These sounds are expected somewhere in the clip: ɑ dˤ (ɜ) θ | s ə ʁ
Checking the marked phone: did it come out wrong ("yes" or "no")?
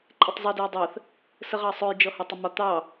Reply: no